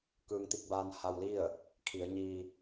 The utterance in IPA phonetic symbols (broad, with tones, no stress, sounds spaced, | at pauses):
k ɯː˧ ŋ t̪ i˥˨ k̚ b aː˧ n h a˧ w l i˥˨ ə̯ | kʰ i˩˧ ə̯ ɲ iː˧